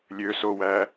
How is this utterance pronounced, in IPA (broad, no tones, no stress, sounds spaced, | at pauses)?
lʲ ø s o w æ